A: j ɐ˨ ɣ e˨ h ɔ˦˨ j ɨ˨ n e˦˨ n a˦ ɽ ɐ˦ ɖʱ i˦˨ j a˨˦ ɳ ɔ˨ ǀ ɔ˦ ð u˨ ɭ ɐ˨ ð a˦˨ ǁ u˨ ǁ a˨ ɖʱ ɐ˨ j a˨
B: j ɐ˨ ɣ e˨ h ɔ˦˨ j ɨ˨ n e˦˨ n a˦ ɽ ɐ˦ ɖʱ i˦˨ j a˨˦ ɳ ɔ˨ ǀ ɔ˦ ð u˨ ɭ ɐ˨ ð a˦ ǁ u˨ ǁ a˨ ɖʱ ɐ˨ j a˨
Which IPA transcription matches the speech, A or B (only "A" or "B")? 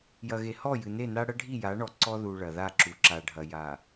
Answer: A